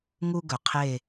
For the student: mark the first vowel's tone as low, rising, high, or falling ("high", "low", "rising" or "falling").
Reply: high